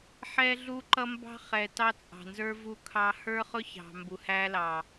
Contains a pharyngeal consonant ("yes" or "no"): yes